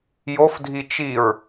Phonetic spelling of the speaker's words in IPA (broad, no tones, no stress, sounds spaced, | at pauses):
j o f dʱ i t͡ʃ i ɹ